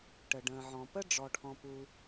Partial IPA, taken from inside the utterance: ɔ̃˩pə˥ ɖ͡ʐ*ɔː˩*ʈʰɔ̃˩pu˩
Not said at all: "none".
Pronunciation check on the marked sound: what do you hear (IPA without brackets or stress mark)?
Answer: ɔ˩